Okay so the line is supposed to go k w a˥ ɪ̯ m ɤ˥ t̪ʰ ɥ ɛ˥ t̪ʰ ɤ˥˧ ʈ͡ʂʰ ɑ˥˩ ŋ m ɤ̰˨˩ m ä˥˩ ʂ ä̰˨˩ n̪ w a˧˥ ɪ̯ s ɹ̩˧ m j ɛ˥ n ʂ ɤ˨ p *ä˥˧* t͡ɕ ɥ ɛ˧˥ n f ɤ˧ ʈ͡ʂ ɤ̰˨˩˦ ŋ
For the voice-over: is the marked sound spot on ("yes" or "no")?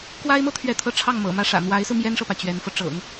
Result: no